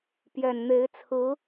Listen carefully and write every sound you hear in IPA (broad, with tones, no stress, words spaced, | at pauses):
pjɛ˨˩nn̪e˧˥ɪ̯t͡sʰɹ̩˧˥